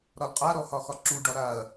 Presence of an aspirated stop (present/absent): absent